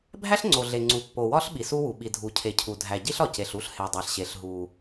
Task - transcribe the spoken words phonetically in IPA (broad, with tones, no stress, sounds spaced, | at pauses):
bʱ æ˥ ɬ ŋ͡ǀ o˩ ɮ e˩ ŋ͡ǀ u˩ pː o˩ w ɒ˥ ɬ ɓ i˩ s u˥ w u˩ ɓ i˩ dʱ u˩ cʰ e˩ cʰ u˩ dʱ æ˩ ɟ i˥ ɬ ɒ˩ c e˩ ɬ u˥ ɬ h e˩ dˤ æ˩ ɬ ɕ e˩ ɬ ɦ u˩